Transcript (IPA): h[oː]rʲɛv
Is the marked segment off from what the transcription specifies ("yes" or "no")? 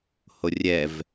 yes